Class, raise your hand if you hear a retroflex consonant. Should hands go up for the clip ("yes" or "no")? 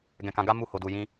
no